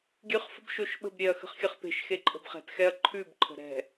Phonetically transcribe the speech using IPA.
ɡʲ ʉ χ f ə̤ b ʃ o ʃ ɓ ə̤ b ɾʲ e ɐ̯ x ə̤ χ xʲ ə χ p e̤ ʃ x e ǃʼ ə̤ b χ ɛ̤ t x ɛ ɐ̯ ǃʰ ʉ b ǃʰ ə̤ ɾ ɛ̤

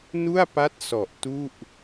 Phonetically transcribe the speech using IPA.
n u˥˩ a̯ p a˦˥ t̚ s ɔ˨˩ ʔ t u˥˩ ʔ

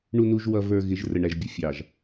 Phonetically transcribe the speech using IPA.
ɳ u˨ n u˨ ʒ w ʌ˨ v ə˞˨ ɣ ɪ˨˦ ʒ r ə˨ ɳ æ˨ ʒ bʲ ʌ˨ fʲ ɑ˨ ʒ

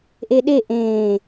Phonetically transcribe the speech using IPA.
ʔ e ɗ e ʔ ẽː

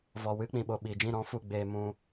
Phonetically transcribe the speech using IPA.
v ɔ˨ w ɨ˧ k͡p ĩ˨ ɓ o˨ ɓ iː˨ d͡ʒ ĩ˦˨ ɾ ɔ̃˦ f u˦˨ ɡ͡b eː˧ m ũ˧

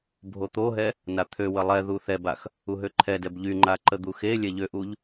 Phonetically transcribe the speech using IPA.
bʱ o t̪ o ɦ ɛ | n a t̪ʰ ø w ə lˠ ɛ ð u θ ɛ b a x | u ɦ ø ǃʰ ɛ d ɛ b ʎ y ŋ͡ǃ a ǃ ə d̪ u x e lʲ ɛ ʎ ø ʔ u ʎ

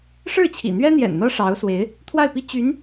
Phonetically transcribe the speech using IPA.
ʂ ɻ̩˥˩ t͡ɕʰ ḭ˨˩ n̪ ɥ ɛ˥ n̪ j ɛ̰˨˩ n n̪ ɤ˥ ʂ ɑ˧˥ ʊ̯ s w e˧˥ ɪ̯ | t̪ʰ w a˥˩ ɪ̯ p i˥ t͡ɕ y˧˥ n

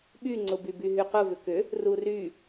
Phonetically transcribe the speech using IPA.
ɓ y ŋ͡ǀ ʊ b y b y ɦ y q ʊ v ʏ k ʏ | r u r y

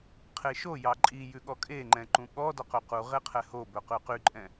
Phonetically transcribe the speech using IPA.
qʰ e ʃ o j ɑ ǃʼ i j ʉ ɠ ɔ kʼ e ŋ͡ǃ ɛ̃ ǃ ũ ɠ ɔ d ɔ q ɵ q u ʁ e qʰ ɛ h o b ɵ q ʉ q y ǃʼ ɛ̃

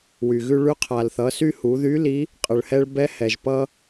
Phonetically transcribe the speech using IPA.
w y˩ ɣ ʉ˧ ɭ ʉ˧˥ qʰ a˩ l θ ʌ˩˧ s y˧ h u˩˧ ð y˧˥ l i˧˥ | qʼ ə˩ ɭ h ɛ˧ ɭ b ɛ˥ h ɛ˩ ʒ p ʌ˧

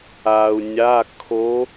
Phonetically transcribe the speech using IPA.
aː˩ u̯ nʲ a˩˧˩ kʰ o˨˦

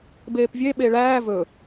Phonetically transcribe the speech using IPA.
b eː p vʲ e ɓ e ɭ æː v ɵ

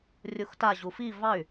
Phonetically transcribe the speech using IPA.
rʲ u x t a ʑ u f i v ɑ y̯

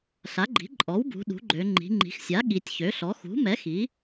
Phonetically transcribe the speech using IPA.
ɬ a˩˥ ɡ͡ǃ i̤˩˥ ǃʼ ɔ˩˥ w b ṳ˩˧ ɗ ṳ˩˥ ɡ͡ǃ ø˩˧ ŋ͡ǃ i̤˩˧ ŋ͡ǃ i̤˩˧ x sʲ a˩˥ ɠ i˩˧ tʲ ç ø˩˥ ɬ ɔ˩˥ x ṳ˩˥ m ɛ˩˥ x i˩˥

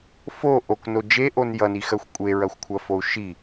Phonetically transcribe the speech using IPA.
f o ʔ o k n o d͡ʒ e ʔ o n j ʌ n i x ɜ xʷ kʷʼ e ɹ ɐ xʷ kʷʰ ɐ f o u̯ ʃ i

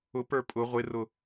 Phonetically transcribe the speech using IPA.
ʊ p ə˞ pʼ ʊ ʁʷ ɪ r ʊ

